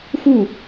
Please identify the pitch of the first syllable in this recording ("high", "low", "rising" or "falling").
falling